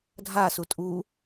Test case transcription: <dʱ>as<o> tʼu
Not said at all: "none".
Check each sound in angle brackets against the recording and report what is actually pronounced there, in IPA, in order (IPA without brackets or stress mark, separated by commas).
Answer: dʱ, u